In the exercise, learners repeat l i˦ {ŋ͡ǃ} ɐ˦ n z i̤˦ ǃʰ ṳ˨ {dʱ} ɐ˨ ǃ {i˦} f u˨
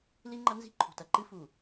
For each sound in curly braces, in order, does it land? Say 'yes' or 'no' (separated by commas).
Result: yes, no, no